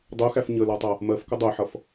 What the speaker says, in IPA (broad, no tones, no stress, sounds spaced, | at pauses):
dˤ u x æ f ɲ ə l ɔ tˤ ʌ | m ɜ f k ə dˤ ʊ ɪ̯ ħ ʌ f